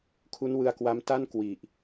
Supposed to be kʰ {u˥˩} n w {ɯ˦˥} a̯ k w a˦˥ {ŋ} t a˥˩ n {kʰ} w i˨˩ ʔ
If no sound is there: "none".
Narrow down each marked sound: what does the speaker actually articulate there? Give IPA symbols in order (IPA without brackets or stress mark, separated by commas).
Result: u˦˥, ɯ˧, m, k